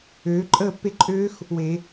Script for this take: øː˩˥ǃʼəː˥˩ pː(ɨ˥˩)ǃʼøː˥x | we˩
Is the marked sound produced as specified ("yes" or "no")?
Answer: no